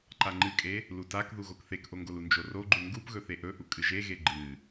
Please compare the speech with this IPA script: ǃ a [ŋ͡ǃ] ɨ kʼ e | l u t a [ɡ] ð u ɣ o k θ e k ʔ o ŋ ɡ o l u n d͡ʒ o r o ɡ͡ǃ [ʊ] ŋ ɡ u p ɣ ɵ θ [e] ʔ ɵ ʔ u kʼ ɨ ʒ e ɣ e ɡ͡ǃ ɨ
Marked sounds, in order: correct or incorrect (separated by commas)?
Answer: correct, incorrect, incorrect, correct